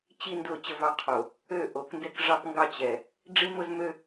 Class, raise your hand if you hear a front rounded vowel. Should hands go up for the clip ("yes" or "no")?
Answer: yes